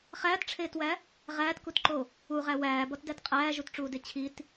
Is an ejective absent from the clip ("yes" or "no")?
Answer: no